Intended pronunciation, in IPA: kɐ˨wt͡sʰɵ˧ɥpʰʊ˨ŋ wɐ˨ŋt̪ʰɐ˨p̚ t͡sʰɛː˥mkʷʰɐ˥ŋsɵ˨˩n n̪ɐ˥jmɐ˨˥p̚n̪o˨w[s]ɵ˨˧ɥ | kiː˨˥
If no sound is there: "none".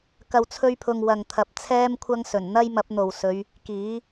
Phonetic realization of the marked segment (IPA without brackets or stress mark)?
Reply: s